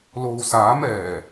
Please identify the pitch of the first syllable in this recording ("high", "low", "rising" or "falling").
low